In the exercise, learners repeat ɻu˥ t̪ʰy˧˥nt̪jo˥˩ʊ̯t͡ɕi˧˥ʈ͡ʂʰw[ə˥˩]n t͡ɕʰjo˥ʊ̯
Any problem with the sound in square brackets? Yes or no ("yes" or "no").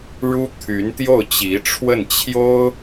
no